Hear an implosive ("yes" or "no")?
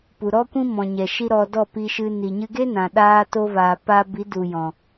yes